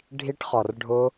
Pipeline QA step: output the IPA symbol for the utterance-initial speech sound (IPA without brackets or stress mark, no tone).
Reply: ɖʱ